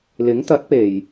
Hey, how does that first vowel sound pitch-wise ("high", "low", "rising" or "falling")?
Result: rising